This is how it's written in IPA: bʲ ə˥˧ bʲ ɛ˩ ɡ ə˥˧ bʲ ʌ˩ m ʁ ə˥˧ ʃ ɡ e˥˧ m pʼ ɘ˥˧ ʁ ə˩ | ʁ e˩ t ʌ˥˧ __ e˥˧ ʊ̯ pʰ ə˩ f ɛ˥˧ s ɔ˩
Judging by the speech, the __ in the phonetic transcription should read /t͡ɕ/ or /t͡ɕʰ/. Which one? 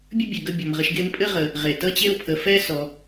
t͡ɕ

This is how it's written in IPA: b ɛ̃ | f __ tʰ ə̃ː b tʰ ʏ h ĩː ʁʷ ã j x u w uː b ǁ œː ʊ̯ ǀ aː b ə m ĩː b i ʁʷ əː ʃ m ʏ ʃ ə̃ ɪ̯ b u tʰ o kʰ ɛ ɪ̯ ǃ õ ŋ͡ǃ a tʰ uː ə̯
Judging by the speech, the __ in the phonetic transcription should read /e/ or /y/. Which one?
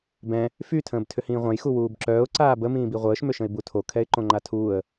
y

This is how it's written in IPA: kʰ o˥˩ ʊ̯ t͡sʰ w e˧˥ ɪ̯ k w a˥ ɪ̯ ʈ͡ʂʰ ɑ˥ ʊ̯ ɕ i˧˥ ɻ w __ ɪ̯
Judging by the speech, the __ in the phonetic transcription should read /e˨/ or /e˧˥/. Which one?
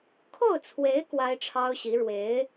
e˧˥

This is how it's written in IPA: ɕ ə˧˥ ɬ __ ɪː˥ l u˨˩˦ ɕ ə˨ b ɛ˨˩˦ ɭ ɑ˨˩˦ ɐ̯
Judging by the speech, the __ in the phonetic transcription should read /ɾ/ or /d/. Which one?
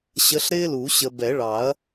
ɾ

